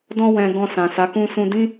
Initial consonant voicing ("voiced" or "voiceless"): voiced